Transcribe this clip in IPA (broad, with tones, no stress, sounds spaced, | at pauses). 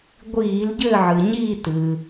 ɡʷ iː˧˩˧ l ɟ ɘː˦˨ ʕ ɨ˩ ɲ iː˦˨ t ɨ˩